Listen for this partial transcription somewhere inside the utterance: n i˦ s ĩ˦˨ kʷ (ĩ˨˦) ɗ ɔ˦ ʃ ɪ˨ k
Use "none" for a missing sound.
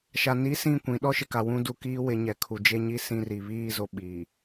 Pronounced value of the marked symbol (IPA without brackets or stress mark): ĩ˨˦